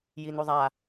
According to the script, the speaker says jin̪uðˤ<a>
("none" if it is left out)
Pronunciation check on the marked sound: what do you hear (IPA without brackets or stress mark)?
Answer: a